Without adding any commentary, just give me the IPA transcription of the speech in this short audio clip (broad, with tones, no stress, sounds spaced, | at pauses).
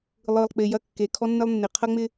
lˠ ɯ˨ lˠ k͡p ɪ˨ j ɐ˧ kː e˨ kʰ ɔ˧ nː ɪ˧ lˠ nː ɪ˨ qʰ ɐ˦ ŋ͡m ɪ˦